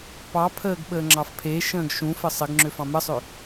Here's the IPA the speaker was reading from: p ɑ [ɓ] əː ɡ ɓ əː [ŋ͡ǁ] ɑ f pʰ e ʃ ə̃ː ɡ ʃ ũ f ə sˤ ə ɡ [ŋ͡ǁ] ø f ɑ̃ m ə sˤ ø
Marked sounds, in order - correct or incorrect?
incorrect: pʰ, correct, correct

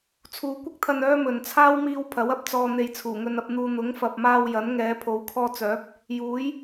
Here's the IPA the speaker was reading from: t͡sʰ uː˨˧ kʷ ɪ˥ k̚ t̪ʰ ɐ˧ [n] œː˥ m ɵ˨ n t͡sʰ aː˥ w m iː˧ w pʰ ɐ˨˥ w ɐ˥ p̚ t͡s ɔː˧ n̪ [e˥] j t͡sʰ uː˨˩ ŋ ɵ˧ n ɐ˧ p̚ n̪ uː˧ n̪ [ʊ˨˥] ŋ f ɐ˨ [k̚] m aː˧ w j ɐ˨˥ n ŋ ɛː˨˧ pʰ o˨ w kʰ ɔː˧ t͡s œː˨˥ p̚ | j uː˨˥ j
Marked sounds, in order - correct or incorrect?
correct, incorrect: e˧, correct, incorrect: p̚

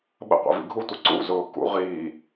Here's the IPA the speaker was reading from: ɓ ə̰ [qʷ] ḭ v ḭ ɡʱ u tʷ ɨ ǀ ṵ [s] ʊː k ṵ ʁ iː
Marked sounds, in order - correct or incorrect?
correct, incorrect: z

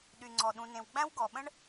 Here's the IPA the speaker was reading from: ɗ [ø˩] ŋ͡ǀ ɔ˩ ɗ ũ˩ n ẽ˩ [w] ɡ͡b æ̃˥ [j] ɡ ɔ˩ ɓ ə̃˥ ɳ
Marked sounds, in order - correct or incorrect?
incorrect: y˩, correct, incorrect: w

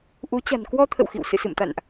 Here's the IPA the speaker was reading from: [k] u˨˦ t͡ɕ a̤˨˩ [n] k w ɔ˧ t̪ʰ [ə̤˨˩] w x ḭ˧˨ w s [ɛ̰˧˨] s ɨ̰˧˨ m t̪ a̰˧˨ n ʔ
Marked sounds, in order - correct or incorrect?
incorrect: ʔ, correct, incorrect: ə̰˧˨, incorrect: ɨ̰˧˨

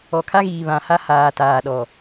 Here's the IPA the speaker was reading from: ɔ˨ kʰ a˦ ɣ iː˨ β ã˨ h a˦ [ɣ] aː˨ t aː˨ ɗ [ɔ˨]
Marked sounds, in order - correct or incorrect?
incorrect: h, correct

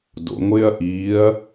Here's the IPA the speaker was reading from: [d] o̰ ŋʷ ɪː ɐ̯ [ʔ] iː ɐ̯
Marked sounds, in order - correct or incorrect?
correct, correct

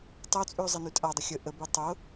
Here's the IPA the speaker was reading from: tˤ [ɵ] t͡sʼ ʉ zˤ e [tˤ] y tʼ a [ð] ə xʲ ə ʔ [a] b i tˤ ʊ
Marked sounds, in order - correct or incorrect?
incorrect: o, incorrect: n, incorrect: dˤ, incorrect: ə

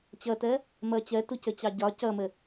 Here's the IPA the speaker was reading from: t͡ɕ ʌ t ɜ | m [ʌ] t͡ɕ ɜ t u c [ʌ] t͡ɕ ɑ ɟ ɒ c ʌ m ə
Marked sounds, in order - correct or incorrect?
correct, incorrect: ə

